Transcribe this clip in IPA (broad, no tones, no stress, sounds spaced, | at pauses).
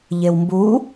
ʎ e w m b u